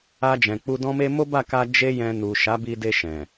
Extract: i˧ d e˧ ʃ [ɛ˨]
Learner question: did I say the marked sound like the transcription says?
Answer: no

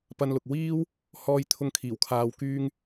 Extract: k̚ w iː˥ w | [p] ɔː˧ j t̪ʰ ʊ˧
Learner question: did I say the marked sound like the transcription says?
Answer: no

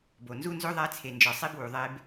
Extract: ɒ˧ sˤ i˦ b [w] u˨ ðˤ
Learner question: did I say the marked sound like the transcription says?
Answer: yes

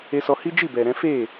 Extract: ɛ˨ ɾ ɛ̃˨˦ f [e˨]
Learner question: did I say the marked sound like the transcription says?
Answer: no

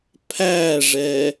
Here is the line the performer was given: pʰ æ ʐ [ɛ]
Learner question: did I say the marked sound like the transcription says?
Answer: yes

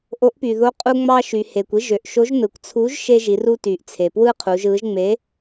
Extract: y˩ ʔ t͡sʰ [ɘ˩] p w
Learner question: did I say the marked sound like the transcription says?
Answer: no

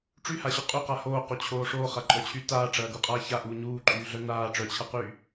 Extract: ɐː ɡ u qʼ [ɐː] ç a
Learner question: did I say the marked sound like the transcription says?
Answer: no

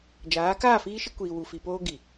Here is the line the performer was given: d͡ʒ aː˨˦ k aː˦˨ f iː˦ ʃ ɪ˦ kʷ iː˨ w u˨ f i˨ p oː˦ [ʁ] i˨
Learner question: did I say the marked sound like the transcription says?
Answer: no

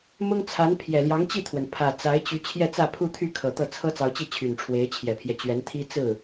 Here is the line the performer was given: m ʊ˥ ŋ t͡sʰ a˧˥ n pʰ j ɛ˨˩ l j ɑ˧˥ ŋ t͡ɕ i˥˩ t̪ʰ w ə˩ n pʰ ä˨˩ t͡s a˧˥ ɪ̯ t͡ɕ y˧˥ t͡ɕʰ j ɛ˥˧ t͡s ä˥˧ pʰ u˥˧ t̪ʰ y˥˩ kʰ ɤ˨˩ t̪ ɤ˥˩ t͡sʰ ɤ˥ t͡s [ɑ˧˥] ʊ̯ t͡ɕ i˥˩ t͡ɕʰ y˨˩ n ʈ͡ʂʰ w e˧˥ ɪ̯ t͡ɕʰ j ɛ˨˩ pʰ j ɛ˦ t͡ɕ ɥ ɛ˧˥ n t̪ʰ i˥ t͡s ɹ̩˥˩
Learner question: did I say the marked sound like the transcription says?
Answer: yes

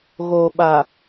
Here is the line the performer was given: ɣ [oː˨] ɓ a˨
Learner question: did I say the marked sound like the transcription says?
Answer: yes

